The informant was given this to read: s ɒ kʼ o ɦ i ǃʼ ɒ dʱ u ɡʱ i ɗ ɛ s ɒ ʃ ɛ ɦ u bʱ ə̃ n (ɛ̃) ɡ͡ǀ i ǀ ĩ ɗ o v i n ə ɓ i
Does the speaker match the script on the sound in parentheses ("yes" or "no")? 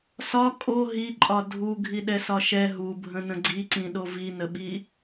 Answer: no